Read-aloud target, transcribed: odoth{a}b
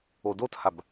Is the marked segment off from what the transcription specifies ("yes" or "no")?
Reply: no